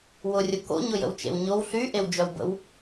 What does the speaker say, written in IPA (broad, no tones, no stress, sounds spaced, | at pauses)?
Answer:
w ʊ rʲ ʊ k o̰ ɲ ʊ j ə̰ w t͡ʃ ḛ w ɲ o w ɬ y ʔ e w d͡ʒ œ w b ə̰ w